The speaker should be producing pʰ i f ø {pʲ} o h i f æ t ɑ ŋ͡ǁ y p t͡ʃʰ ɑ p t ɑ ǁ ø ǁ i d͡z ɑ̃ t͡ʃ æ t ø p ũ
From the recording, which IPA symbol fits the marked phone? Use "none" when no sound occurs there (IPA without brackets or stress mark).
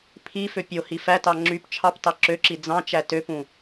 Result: pʲ